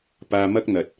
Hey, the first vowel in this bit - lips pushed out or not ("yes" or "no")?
no